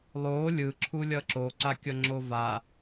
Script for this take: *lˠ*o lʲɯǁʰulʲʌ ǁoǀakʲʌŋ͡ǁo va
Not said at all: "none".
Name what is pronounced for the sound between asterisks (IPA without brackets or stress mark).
lˠ